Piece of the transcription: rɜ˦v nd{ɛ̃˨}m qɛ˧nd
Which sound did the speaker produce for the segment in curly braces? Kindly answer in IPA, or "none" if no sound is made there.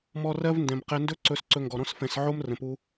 ɛ̃˨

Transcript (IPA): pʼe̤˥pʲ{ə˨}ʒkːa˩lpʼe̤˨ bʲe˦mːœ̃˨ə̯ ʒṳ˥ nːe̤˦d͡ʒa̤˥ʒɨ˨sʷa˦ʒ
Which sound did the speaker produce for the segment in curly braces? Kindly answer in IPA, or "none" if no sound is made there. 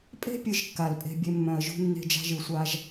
ɨ˨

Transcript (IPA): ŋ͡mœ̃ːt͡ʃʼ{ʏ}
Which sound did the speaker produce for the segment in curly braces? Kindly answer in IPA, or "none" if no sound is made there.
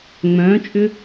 ʏ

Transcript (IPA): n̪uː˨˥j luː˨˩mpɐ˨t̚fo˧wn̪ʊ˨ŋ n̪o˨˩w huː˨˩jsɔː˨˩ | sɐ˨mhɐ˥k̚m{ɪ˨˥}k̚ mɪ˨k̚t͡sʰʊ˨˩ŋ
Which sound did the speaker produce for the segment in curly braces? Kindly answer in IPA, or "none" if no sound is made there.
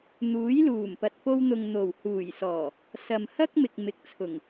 ɪ˨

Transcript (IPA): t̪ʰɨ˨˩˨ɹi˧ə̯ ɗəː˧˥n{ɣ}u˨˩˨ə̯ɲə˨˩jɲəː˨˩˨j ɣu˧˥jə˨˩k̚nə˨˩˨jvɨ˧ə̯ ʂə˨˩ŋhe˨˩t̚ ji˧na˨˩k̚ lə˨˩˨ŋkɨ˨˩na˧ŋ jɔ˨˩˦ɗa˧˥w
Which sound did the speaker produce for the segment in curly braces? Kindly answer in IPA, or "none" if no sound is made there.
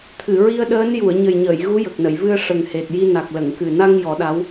j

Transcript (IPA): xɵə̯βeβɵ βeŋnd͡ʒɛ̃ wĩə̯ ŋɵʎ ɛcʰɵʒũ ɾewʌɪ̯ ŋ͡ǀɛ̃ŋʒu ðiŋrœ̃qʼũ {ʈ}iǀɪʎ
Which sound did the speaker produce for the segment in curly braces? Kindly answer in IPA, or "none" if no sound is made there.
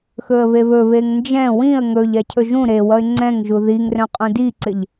d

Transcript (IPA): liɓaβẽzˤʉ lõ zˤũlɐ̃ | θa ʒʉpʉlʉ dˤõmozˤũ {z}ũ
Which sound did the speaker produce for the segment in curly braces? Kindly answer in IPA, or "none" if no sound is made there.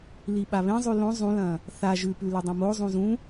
z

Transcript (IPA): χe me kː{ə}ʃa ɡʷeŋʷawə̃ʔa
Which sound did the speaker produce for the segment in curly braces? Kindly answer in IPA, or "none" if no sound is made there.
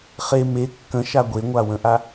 ə̃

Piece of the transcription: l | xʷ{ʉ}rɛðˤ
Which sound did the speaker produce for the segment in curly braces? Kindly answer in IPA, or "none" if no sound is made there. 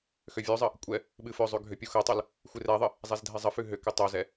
ɨ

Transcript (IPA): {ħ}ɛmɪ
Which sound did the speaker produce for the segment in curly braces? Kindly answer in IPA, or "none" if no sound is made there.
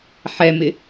ħ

